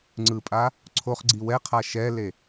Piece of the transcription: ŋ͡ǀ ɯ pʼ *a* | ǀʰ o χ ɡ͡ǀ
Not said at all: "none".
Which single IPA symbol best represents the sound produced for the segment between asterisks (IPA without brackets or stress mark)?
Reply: a